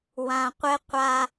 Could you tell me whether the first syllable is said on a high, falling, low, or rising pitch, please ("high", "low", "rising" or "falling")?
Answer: low